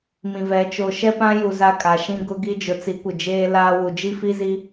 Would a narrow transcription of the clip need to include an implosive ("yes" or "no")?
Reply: no